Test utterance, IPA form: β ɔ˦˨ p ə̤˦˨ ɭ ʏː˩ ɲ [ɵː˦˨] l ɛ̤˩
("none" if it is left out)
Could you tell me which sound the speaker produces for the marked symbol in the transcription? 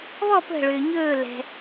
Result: ɵː˦˨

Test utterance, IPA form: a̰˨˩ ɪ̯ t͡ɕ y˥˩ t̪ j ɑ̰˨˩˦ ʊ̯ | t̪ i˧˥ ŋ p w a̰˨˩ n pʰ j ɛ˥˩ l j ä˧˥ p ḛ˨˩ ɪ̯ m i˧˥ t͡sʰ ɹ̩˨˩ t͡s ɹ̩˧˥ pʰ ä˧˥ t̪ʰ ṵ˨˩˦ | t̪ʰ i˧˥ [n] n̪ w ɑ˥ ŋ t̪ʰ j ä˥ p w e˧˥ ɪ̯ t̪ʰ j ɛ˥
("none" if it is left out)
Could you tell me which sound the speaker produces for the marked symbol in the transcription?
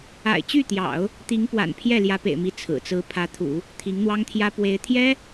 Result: ŋ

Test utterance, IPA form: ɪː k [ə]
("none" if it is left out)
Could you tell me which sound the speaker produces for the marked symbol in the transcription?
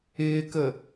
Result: ə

